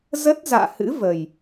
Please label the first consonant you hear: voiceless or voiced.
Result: voiced